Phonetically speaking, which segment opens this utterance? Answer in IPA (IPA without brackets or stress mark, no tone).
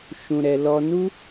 ʃ